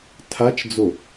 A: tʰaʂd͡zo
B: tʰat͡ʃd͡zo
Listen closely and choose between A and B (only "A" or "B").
B